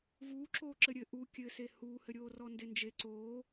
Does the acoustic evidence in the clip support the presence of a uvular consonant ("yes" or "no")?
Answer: no